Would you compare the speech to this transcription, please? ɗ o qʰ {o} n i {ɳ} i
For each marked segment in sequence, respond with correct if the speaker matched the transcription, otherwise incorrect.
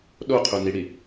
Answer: correct, incorrect: ɽ

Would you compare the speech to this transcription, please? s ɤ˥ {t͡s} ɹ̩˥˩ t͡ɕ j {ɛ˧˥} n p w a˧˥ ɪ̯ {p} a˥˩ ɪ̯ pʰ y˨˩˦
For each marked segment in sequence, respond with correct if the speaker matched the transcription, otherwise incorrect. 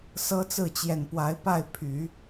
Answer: correct, incorrect: ɛ˨˩, correct

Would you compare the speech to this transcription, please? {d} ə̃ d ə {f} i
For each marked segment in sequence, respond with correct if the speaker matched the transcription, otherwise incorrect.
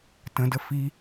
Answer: incorrect: t, correct

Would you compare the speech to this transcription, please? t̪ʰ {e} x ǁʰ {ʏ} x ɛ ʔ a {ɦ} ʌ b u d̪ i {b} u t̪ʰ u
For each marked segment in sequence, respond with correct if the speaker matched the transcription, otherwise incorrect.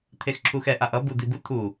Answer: correct, incorrect: u, incorrect: ʔ, correct

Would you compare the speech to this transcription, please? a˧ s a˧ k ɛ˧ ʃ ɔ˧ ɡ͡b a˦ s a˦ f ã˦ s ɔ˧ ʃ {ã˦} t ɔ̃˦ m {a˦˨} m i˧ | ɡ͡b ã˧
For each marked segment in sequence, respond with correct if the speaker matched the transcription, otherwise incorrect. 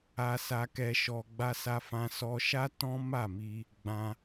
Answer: incorrect: a˦, correct

